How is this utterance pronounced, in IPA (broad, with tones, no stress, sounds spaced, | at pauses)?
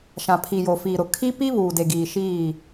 ʃ ã˨ pʰ i˨ j o˨ f iː˨ ɾ ʊ˨ kʰ i˦ p i˦ β uː˨ d e˨ ɡ iː˨ ʃ iː˦˨